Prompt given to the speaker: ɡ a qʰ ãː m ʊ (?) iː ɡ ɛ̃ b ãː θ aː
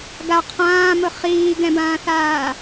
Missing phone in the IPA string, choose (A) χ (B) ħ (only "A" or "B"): A